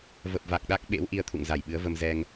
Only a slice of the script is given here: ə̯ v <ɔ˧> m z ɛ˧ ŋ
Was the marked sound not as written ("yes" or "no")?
yes